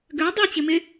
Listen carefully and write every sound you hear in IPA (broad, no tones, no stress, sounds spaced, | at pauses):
ɡ ø dˤ i t͡ɕ ɪ m ɪ